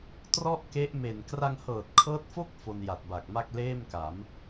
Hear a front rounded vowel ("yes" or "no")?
no